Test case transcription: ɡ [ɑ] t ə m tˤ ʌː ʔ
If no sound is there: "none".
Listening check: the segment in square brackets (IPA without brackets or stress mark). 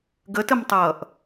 ə